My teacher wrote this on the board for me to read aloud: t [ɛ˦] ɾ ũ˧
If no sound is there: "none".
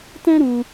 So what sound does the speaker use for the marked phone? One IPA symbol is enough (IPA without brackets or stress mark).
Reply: ɛ̃˦